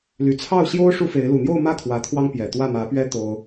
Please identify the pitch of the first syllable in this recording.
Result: low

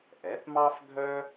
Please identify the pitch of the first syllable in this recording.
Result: rising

